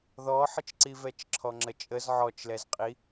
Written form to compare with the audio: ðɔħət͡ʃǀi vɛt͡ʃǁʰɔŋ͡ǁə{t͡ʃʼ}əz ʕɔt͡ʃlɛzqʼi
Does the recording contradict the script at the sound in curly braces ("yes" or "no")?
no